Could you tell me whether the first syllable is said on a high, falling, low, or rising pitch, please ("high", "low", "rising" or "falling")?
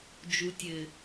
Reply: low